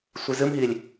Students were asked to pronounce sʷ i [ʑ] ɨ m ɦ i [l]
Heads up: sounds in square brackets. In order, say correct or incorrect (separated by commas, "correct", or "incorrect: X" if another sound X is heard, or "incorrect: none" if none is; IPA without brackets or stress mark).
incorrect: z, incorrect: lʲ